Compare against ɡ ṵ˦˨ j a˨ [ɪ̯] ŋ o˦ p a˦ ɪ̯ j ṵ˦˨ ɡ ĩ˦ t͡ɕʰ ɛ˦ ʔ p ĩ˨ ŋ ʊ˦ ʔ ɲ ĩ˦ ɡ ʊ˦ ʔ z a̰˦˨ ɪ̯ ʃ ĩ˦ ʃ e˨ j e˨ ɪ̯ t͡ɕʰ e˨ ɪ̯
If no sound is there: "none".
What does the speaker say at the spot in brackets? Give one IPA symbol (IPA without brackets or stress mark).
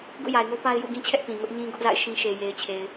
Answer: ɪ̯